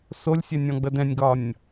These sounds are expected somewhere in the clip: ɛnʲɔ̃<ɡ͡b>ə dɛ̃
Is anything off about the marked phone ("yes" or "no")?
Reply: no